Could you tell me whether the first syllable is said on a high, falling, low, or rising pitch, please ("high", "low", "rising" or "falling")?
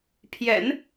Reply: low